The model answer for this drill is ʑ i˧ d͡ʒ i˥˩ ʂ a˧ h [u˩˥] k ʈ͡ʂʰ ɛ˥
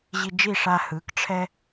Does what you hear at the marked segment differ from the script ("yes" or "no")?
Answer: yes